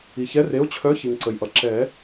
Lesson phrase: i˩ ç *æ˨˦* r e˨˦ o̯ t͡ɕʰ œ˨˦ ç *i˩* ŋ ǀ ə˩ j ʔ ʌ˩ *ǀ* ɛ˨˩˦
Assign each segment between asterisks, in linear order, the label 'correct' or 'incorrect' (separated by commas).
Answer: incorrect, correct, incorrect